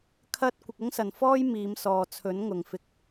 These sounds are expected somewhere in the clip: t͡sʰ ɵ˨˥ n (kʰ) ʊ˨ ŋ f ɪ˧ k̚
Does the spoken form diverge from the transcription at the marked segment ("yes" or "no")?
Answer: yes